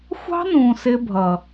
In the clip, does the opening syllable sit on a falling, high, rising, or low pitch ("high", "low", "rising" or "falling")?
high